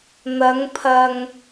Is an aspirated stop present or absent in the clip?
present